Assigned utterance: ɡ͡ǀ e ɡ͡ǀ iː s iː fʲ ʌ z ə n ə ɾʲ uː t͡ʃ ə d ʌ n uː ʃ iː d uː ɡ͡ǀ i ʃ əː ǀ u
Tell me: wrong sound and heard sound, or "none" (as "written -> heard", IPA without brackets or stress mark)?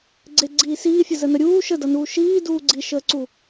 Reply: t͡ʃ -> ʃ